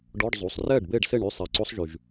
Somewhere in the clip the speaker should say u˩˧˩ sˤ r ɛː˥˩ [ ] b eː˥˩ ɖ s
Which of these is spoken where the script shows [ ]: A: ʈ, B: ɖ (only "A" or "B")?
B